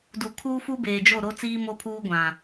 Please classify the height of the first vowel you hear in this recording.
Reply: high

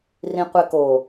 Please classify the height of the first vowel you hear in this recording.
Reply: high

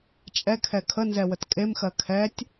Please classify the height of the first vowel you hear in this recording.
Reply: mid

